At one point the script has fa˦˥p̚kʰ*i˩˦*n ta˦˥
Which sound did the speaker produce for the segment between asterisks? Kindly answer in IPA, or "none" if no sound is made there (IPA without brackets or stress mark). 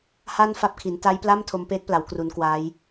i˩˦